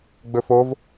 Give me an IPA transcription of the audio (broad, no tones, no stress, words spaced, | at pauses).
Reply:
ɡ͡bɵfov